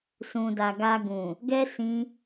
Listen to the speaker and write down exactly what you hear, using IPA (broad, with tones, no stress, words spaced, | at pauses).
sũ˨da˨ɡa˧ ɡũ˨ | ɡɛ˦ sĩ˦